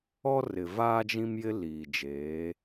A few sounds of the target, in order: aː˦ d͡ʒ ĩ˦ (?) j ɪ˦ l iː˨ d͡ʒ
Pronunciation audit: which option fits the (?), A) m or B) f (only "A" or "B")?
A